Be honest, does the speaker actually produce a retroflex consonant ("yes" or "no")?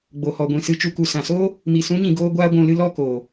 no